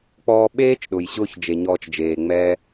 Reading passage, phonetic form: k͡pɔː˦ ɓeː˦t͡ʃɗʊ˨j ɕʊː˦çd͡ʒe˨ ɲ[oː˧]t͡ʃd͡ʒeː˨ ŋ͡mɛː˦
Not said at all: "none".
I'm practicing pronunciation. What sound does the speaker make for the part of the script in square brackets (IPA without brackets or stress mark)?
ɔː˧